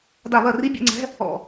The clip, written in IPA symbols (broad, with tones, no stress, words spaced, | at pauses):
da˧˩˧βɐ˧˩˧ri˧˥˧ bʲɛ̰˥˧ŋ͡ǀɛ̤˧˥˧ | ɔ̰˧˩